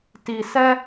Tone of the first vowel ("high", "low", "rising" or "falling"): low